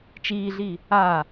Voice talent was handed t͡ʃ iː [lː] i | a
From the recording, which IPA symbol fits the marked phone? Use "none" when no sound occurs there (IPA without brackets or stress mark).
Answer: ɮ